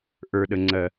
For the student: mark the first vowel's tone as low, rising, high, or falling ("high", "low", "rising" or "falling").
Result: low